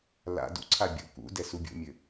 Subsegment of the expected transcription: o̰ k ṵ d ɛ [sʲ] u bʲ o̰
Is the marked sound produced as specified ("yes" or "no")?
no